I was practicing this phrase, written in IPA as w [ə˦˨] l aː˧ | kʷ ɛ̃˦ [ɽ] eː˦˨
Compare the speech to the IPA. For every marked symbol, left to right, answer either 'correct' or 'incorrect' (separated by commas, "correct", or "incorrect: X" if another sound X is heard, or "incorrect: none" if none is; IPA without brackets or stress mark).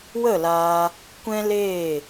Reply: correct, incorrect: l